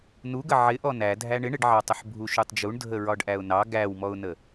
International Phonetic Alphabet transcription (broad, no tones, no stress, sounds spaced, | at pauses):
n u ɡ ə ʕ ɪ ʔ ɔ n æ dʱ æ ɳ ɪ ɳ ɪ ɖ ʕ ɑ tˤ ə ħ bʱ u ʃ u tˤ d͡ʒ u ɳ dʱ ə ɹ ɒ ɖ ʔ æ ʊ̯ n ɑ ɡ æ w m ɔ ʊ̯ n ə